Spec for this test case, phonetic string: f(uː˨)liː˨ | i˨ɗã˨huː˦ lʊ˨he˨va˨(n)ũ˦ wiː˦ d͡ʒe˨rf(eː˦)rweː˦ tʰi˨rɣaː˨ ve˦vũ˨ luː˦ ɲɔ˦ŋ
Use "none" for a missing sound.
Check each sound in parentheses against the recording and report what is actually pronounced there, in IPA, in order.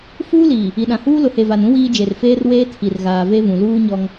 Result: uː˦, n, eː˦

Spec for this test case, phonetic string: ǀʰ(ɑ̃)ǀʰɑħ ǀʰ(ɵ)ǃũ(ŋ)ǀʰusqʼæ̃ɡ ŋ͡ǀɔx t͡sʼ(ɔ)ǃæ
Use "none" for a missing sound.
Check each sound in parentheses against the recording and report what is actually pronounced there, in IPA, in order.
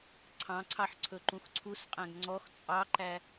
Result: ɑ̃, ɵ, x, ɑ

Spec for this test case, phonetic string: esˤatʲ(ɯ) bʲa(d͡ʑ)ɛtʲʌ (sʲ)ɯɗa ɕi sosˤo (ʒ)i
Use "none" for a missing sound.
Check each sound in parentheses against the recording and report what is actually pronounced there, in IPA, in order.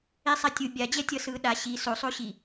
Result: ɯ, d͡ʑ, s, ɕ

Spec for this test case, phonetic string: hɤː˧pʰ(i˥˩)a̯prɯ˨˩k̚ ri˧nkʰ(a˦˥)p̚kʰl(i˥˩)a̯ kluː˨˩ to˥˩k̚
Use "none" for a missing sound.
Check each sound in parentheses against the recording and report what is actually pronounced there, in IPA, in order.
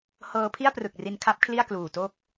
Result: i˥˩, a˦˥, i˥˩

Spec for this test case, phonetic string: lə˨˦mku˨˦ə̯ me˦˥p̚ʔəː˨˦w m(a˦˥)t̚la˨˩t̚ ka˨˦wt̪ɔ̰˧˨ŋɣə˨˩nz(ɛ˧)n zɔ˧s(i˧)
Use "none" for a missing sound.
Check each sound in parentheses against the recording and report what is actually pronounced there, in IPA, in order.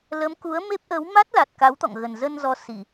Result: a˦˥, ə˧, i˧˩˨

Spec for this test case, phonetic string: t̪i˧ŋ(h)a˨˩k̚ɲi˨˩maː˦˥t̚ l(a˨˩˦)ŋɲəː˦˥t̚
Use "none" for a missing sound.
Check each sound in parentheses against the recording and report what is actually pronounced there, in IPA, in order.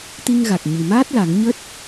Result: ɣ, a˨˩˦

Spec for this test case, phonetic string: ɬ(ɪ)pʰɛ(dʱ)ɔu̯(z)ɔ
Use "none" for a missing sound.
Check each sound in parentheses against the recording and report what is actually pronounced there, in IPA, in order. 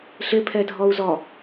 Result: ɪ, dʱ, z

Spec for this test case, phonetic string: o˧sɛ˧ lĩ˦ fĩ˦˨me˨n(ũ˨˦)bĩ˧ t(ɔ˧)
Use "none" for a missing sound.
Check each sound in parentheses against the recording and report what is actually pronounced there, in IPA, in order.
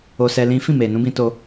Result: ũ˨˦, o˧

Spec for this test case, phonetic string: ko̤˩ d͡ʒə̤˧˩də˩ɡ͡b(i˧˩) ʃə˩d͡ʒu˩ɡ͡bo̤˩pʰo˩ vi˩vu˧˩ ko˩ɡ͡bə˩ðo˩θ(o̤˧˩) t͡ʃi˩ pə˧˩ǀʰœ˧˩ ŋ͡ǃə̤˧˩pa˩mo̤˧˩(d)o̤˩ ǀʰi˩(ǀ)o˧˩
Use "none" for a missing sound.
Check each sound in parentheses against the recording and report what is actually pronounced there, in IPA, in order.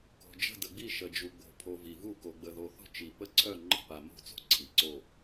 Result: i˧˩, o̤˧˩, t͡s, ǀ

